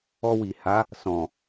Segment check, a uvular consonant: absent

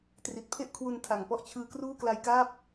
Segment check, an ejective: absent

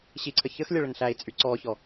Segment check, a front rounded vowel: present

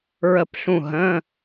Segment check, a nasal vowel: present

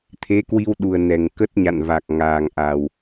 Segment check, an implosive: present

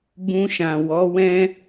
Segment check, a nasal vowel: present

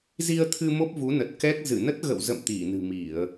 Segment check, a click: absent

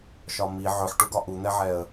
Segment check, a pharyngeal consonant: present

